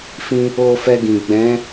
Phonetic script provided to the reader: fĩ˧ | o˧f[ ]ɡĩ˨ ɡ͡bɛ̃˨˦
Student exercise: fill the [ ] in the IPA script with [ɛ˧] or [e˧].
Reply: ɛ˧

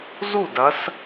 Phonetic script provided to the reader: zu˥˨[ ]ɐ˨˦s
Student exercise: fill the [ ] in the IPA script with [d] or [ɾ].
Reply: d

